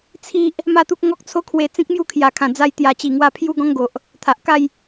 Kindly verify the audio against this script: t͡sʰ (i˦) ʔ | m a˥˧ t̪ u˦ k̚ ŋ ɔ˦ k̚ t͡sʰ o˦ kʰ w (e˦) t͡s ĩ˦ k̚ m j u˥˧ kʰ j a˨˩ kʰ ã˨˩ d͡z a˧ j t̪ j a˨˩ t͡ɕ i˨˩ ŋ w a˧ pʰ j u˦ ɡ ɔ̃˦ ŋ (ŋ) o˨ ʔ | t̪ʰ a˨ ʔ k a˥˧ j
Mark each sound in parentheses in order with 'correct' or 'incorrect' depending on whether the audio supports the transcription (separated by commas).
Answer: correct, incorrect, incorrect